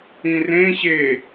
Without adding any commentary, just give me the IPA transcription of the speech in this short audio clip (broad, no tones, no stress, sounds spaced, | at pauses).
ĩ r ẽ ɕ e